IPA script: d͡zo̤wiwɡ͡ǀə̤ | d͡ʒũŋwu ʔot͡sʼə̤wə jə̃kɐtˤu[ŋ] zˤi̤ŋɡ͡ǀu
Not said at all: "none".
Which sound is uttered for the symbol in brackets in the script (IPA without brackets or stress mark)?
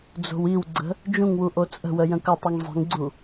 ŋ